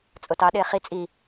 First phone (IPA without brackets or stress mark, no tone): t͡sʼ